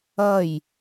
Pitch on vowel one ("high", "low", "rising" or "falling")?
falling